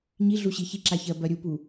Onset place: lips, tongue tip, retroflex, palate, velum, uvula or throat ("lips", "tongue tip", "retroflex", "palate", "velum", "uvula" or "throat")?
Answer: palate